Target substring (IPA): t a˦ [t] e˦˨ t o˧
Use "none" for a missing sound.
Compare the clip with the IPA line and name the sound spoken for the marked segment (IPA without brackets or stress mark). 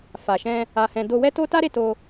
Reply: ɾ